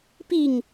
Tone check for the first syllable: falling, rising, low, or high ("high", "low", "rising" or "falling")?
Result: falling